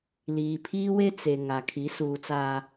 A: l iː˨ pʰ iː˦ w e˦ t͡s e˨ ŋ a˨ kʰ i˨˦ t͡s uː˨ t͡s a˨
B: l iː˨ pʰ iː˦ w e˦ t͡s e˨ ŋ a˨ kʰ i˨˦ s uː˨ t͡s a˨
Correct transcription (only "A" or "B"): B